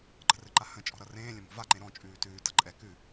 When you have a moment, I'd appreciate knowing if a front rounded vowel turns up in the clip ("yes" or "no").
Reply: no